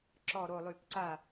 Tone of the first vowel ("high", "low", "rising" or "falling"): low